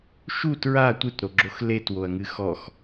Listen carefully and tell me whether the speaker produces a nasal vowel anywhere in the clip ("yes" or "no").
no